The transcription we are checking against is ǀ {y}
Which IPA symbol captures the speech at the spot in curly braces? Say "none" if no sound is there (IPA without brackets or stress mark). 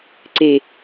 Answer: e